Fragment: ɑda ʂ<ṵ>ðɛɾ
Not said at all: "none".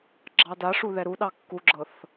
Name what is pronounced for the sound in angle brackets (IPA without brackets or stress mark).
u